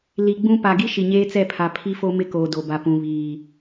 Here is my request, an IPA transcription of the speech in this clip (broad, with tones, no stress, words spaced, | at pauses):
li˨ɡ͡bũ˦ pa˨ɡi˦ ʃi˨ɲeː˦t͡sɛ˦˨pʰa˨ pʰi˦fo˦mɪ˦ koː˨do˨ba˨ pũ˨βiː˨